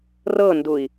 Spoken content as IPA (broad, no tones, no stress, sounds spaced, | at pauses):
r ɤ n d u i̯